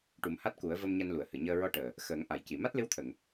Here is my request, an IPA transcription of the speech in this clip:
ʈ u˨˩˦ m h a˦˥ t̚ k u˨˩˦ ə̯ v ə˧ m ɲ a˧ n l u˨˩˨ ə̯ h ɨ˨˩˨ ɲ əː˧ ɹ ɔ˧ ʈ əː˨˩ | x əː˨˩˦ ŋ ʔ a˨˩˨ j c i˨˩˨ m a˦˥ t̚ l ɨ˧˥ w t̪ʰ ə˨˩˨ ŋ

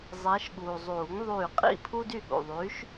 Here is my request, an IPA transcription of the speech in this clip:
zˤ ɛ˨˦ ʃ ɠ uː˩ zˤ uː˨˩˦ ŋ ðˤ yː˧˩ qʼ ḭ˥˩ pʰ uː˦ d y˥˩ ɠ ṵ˩ ðˤ y˨˦ ʃ

